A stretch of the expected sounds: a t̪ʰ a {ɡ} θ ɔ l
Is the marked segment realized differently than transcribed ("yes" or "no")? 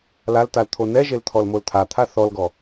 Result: yes